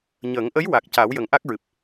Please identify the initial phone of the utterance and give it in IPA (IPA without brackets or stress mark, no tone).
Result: ɲ